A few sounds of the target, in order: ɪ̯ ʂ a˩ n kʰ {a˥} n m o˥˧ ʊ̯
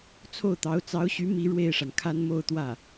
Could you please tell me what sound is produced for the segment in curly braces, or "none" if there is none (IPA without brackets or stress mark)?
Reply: a˥